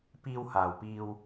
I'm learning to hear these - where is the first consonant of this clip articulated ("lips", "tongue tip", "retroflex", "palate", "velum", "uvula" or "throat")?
lips